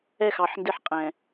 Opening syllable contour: falling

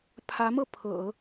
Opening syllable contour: rising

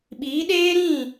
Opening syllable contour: rising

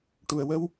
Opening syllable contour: low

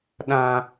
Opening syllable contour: high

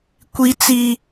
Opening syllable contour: high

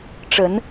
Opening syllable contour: rising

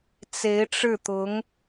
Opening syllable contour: rising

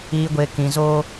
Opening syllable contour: low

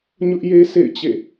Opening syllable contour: high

